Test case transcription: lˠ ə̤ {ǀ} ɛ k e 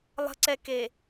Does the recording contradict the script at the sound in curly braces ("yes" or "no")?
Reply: no